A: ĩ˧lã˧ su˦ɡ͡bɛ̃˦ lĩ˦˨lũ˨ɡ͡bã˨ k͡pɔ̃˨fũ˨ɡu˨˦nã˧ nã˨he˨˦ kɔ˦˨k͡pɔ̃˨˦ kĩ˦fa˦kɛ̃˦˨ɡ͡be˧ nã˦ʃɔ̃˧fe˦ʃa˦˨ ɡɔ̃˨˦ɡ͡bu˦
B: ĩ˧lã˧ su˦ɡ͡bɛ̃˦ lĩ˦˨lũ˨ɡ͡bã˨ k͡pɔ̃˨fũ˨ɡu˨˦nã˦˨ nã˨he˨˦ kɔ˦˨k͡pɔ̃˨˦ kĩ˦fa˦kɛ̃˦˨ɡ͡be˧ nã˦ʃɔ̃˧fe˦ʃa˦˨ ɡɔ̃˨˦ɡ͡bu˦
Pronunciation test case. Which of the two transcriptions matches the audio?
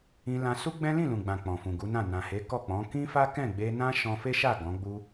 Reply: B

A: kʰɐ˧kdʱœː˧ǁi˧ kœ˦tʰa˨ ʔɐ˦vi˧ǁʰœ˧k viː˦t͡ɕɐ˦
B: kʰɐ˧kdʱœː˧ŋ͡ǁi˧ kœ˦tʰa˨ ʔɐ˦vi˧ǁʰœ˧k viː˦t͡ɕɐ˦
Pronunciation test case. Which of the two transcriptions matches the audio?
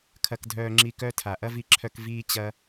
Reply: B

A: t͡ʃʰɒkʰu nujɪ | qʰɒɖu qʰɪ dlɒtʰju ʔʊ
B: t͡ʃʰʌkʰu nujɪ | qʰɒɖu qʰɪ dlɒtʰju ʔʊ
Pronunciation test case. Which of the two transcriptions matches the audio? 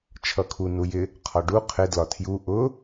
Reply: B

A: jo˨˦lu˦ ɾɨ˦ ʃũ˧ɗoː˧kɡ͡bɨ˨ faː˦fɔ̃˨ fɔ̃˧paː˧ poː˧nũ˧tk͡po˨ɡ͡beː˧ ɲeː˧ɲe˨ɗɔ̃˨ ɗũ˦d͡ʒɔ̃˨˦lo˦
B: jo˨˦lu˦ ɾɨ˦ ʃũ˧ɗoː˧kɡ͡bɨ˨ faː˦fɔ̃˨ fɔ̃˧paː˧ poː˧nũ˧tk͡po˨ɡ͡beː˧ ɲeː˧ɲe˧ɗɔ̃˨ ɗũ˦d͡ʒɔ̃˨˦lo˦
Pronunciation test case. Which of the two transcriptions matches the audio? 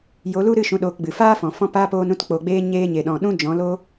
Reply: A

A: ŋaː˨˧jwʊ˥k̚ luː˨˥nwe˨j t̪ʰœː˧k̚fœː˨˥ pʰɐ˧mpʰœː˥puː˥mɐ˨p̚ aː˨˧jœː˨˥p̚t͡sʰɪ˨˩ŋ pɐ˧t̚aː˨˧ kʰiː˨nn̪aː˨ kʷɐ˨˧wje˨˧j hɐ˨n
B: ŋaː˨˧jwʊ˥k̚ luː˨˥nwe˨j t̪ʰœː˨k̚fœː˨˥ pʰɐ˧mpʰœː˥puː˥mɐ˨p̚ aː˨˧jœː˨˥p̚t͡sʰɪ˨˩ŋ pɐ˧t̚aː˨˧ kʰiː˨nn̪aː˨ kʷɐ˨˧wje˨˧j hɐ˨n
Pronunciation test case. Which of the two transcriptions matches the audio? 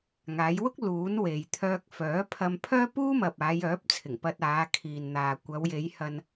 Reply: A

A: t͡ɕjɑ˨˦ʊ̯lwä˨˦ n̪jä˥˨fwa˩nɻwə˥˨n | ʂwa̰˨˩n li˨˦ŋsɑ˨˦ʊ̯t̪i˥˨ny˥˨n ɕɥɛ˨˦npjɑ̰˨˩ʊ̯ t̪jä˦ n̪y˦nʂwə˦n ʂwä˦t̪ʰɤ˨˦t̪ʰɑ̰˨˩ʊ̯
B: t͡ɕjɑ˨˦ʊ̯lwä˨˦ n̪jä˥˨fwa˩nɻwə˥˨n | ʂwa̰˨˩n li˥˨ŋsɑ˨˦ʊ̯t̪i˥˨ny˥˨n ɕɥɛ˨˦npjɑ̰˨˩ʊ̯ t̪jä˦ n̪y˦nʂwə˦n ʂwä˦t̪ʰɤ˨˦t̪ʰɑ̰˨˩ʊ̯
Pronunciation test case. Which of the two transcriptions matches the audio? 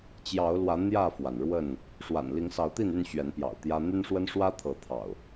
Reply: A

